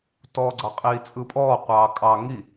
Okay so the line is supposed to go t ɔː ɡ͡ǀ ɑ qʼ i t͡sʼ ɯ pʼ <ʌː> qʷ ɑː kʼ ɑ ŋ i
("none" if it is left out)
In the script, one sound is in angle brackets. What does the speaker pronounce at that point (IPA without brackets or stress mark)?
ɔː